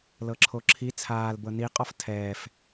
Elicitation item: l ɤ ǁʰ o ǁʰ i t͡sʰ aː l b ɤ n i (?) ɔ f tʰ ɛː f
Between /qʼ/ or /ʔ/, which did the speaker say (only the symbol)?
qʼ